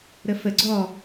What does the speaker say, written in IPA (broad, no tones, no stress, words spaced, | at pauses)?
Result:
ɾəfə ɡ͡ǀɔ